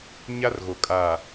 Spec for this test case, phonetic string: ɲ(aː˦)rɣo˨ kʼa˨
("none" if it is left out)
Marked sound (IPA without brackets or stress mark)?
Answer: a˦